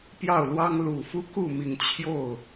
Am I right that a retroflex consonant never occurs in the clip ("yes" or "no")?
yes